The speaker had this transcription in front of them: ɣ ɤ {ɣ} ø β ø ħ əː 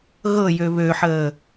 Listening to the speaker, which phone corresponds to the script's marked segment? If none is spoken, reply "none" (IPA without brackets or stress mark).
j